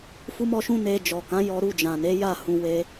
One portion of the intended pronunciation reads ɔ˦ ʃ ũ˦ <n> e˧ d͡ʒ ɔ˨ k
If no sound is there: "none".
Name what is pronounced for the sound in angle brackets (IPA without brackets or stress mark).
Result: n